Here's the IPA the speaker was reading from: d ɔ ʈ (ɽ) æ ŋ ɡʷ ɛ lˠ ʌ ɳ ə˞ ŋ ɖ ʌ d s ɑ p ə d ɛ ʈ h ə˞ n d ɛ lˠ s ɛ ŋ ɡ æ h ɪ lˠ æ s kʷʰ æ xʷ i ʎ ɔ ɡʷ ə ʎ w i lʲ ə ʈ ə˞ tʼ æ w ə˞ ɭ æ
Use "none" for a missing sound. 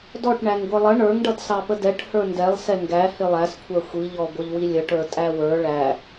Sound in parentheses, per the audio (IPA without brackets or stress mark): ɳ